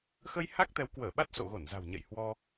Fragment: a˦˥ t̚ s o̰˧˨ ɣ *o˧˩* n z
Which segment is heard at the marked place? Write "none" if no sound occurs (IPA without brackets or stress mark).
o˧˩